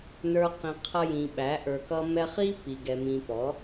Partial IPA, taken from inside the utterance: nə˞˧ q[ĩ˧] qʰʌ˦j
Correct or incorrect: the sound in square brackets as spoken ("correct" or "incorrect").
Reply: correct